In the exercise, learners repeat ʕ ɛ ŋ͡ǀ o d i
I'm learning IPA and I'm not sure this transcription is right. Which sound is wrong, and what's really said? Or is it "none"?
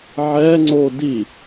none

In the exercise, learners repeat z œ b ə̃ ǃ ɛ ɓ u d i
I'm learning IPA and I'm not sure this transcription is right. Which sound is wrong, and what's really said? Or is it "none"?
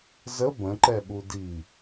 œ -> ə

